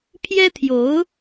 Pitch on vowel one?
high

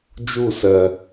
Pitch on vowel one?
falling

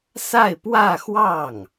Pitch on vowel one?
falling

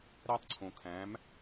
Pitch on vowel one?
high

